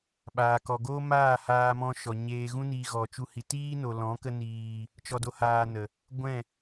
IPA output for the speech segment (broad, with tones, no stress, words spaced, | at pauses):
ɓaː˨kɔ˨ɡoː˦ maː˦˨haː˧mɔ̃˧ʃɔ˨ ɲeː˧ ɣũ˦niː˧ɣɔ˨t͡ʃu˧ hi˨tiː˦no˨ lɔ̃˨˦kə˧ niː˨ | t͡ʃɔ˧do˧ haː˧nə˨ | ɡʷɛ̃˦˨